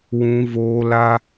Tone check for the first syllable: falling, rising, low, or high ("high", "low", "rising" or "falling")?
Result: high